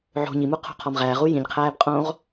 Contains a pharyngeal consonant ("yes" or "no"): yes